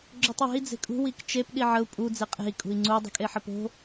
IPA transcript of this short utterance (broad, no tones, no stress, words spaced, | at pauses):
ɡ͡ǁotˤwe̤i̯ d͡ze̤kʼṳ wikt͡ʃep ɗiʕəu̯ pʼu d͡zeqʼe̤i̯ kʼṳi̯ŋ͡ǀu dˤə̤kʼeħəpo̤